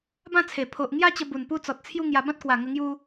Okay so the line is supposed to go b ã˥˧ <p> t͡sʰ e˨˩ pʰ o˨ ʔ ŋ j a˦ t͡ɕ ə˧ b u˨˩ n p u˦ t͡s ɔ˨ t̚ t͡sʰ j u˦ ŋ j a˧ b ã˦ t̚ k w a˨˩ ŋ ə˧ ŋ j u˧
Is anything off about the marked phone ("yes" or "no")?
yes